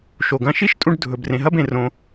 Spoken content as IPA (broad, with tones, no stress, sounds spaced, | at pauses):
ʃ o˨ ɡ ɐ̃˧ ʃ i˦ ʃ tʼ ũ˧ ɖ dʱ ɵ˨ b r ẽ˨ ɦ ɐ˦ b ẽ˧ r õ˧